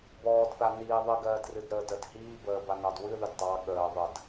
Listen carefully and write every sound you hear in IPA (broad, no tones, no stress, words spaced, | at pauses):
bɔːdθa niː ðˤɨɡɜːdrɨdɾəːd əd hiː bəːbanɑd wɨðɨd tˤɑ ɠəː ðˤəd